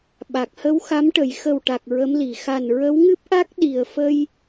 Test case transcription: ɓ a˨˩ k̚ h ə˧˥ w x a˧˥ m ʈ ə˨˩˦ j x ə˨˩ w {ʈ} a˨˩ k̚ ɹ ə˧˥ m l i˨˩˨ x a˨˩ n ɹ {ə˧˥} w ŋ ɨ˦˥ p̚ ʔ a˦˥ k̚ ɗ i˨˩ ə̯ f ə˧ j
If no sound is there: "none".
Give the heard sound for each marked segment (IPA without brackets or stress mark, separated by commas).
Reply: ʈ, ə˧˥